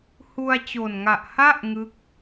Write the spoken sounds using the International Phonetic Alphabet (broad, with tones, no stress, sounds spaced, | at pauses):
h u˧ a̯ t͡ɕ o˨˩ n ŋ a˨˩ ʔ h a˥˩ ʔ ŋ ɯ˥˩ k̚